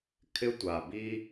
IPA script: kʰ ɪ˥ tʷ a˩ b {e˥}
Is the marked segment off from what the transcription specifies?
yes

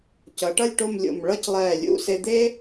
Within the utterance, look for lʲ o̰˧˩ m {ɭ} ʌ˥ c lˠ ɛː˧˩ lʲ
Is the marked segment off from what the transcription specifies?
no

